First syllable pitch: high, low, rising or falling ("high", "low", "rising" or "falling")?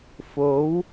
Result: rising